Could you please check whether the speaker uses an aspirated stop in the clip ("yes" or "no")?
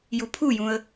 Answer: yes